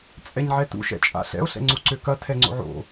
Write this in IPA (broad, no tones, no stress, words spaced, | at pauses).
t͡sʼɛɲʕɛtṵ ʃɛ̰t͡ʃʼa̰ɬɛ̰o̯ ɬɛ̰ŋ͡ǀuǀøkɐ tʰɛŋ͡ǀo̰ʕo̰